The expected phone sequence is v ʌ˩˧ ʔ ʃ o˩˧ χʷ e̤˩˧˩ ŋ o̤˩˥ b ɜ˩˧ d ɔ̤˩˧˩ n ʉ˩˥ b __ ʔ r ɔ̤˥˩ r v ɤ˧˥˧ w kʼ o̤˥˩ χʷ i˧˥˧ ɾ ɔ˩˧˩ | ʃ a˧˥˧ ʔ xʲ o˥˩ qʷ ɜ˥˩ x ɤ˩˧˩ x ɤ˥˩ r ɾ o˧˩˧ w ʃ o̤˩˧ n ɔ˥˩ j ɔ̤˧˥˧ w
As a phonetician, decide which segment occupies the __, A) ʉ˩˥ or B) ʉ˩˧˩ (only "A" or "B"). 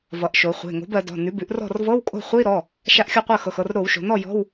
A